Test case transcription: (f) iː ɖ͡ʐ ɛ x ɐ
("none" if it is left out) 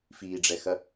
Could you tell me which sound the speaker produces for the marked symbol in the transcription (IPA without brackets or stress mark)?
f